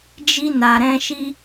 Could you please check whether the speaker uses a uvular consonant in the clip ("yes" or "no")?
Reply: no